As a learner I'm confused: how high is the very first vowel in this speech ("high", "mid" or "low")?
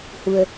high